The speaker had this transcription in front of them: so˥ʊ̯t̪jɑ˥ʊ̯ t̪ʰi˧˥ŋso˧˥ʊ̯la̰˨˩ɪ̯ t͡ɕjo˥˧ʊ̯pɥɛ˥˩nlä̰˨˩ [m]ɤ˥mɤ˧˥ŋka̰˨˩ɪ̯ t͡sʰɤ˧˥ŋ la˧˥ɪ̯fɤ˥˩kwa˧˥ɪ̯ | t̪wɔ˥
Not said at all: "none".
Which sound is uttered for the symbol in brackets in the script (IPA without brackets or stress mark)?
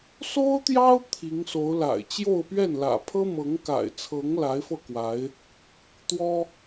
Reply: pʰ